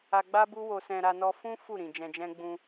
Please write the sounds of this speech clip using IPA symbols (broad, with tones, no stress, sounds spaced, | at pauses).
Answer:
a˧ ɡ͡b a˦ b u˦ w o˧ s ɛ̃˧ ɾ a˧ n ɔ˧ f ũ˦ f u˦˨ ɾ ĩ˨ d͡ʒ ɛ̃˧ d͡ʒ ɛ̃˦ ɡ͡b ũ˧